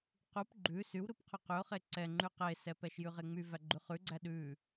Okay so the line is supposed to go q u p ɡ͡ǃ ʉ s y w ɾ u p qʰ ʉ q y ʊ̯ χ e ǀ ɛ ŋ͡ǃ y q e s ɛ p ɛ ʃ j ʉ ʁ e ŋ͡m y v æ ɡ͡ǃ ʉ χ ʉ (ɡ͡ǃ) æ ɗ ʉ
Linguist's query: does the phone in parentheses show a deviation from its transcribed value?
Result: yes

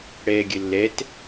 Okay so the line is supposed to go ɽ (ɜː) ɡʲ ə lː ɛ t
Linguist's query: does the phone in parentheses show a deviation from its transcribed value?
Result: yes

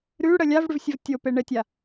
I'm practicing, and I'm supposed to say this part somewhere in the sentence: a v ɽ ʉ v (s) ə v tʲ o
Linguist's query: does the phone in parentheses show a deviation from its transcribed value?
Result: yes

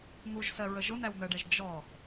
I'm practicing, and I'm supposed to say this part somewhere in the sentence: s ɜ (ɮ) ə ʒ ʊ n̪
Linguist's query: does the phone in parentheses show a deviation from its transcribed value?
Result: yes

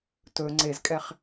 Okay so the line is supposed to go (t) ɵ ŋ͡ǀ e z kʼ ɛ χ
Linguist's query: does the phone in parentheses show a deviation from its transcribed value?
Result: no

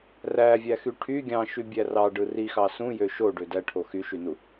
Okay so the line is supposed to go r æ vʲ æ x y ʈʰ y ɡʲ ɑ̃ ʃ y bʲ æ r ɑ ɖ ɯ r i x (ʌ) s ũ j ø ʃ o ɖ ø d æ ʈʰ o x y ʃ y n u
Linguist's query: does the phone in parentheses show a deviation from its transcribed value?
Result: yes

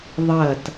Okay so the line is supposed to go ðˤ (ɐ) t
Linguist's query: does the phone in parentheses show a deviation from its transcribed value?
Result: no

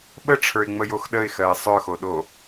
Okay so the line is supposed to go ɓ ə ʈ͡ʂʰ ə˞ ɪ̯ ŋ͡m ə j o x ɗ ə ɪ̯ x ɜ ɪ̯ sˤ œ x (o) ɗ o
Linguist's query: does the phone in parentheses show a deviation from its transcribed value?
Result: no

